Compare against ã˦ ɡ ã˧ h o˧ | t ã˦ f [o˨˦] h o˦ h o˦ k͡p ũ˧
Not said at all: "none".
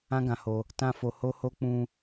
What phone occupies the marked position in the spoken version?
o˧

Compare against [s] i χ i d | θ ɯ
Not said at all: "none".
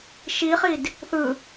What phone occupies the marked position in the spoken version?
ʃ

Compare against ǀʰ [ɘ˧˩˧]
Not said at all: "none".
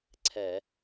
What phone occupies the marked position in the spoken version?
ɛ˧˩˧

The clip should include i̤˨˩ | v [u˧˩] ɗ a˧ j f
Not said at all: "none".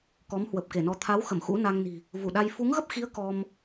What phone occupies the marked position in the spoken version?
u˧˩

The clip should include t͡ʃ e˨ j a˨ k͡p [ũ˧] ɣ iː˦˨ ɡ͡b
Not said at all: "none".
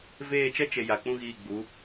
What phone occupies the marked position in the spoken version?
ũ˦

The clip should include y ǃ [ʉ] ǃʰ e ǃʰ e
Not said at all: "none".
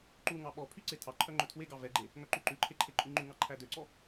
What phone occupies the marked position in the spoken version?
ʉ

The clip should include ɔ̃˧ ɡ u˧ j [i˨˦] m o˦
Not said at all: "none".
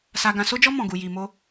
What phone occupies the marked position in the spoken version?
i˧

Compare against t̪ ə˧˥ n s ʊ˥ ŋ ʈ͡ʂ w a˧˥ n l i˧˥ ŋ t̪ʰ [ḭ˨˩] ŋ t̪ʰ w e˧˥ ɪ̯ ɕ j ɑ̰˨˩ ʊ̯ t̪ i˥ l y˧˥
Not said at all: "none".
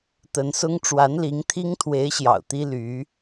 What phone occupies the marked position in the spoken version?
i˥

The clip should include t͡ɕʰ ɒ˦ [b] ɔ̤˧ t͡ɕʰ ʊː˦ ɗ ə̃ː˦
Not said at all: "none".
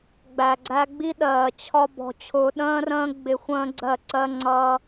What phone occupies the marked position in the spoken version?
b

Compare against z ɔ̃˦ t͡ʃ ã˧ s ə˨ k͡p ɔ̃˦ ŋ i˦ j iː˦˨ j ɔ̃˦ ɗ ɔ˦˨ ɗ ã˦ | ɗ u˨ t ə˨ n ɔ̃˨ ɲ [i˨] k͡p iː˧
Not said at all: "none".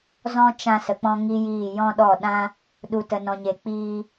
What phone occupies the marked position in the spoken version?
e˨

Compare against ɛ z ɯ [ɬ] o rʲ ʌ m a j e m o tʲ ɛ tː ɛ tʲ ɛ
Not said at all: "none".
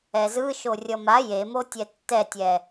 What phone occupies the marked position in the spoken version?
ʃ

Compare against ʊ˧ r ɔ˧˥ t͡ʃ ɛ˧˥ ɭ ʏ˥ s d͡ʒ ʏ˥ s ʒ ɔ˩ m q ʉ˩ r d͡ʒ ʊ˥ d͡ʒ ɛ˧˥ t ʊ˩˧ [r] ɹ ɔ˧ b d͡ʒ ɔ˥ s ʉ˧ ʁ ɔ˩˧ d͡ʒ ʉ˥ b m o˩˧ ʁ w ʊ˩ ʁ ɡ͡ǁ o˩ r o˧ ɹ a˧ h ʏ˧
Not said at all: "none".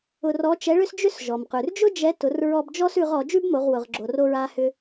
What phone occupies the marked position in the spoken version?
r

